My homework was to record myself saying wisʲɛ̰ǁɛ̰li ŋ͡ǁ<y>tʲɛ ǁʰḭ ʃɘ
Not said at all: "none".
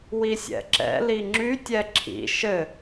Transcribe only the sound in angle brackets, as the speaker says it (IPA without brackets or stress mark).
y